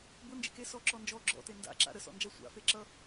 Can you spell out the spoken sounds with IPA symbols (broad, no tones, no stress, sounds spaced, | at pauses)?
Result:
b ʊ n d͡ʒ ḛ k e s ɔ ǁ ɔ n d͡ʒ ɔ ɡ͡ǁ ɔ̰ t e n d a̰ ǁ a̰ ɾ ə s ɔ̰ n d͡ʒ a sʷ a̰ f e ǁ ʌ